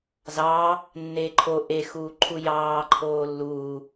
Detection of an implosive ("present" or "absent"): absent